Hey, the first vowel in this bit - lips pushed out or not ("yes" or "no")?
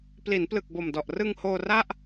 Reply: no